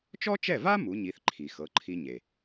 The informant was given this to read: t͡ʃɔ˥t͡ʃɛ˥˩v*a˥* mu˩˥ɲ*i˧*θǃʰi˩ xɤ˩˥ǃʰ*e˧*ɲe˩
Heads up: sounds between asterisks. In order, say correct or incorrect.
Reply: correct, incorrect: i˩˥, incorrect: i˧

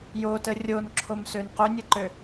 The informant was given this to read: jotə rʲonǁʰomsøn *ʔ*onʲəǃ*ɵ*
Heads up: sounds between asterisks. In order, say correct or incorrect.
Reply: incorrect: q, incorrect: ø

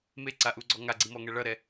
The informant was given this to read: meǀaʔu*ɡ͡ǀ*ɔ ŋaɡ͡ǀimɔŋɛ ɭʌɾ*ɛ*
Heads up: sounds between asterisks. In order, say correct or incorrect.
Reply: correct, correct

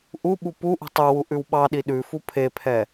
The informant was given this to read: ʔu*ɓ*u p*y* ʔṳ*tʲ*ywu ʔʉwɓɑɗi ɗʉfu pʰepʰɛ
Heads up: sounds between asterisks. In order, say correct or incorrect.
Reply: correct, incorrect: u, incorrect: tˤ

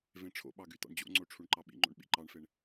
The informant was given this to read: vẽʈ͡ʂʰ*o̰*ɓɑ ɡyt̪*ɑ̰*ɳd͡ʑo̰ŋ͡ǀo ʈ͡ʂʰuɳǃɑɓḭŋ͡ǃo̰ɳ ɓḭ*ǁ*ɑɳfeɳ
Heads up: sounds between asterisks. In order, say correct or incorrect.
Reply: correct, correct, incorrect: ǃ

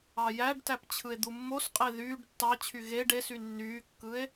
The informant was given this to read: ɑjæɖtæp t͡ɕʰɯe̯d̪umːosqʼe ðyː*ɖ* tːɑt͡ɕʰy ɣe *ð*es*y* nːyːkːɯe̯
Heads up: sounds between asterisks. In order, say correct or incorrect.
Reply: correct, incorrect: ɖ, correct

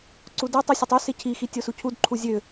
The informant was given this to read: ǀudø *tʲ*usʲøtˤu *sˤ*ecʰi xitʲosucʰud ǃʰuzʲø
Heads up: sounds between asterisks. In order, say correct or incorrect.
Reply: incorrect: tˤ, incorrect: s

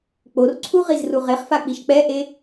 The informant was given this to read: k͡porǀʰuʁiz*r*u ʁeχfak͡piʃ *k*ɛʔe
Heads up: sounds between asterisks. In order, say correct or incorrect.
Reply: correct, incorrect: k͡p

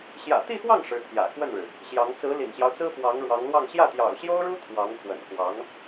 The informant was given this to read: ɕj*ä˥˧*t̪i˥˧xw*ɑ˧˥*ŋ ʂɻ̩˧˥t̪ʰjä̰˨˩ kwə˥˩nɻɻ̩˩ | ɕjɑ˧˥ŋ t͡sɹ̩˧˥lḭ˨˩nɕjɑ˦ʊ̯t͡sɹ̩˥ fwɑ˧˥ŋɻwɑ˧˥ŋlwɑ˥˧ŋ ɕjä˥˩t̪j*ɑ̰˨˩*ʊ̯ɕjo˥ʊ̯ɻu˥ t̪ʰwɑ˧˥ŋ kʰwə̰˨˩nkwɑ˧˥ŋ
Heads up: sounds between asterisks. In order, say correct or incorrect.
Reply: incorrect: ä̰˨˩, incorrect: ɑ˥˩, correct

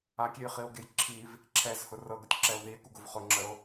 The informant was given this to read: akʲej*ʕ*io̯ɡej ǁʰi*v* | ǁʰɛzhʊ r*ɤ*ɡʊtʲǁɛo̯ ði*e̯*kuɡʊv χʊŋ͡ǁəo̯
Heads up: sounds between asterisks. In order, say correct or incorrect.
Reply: incorrect: χ, correct, correct, correct

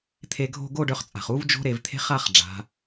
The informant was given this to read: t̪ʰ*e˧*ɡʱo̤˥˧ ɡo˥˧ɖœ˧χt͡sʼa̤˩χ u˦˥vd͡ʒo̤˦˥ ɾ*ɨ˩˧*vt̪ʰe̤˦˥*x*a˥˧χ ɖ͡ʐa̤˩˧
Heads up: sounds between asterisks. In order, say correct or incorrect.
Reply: correct, incorrect: e˩˧, incorrect: χ

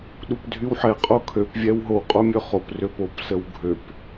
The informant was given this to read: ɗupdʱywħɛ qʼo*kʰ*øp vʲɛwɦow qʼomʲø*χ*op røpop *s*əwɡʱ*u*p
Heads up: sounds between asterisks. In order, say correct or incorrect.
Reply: correct, correct, correct, incorrect: ø

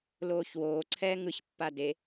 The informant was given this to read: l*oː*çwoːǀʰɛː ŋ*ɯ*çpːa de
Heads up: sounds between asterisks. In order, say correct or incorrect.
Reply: correct, correct

